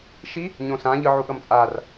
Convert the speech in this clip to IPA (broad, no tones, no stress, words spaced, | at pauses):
ʃi | ɲõsãʎɯ ʕuɠʌmt͡sʼar